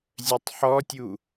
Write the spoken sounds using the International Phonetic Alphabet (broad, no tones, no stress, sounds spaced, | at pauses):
zʲ œ tˤ ħ ɔ tʲ u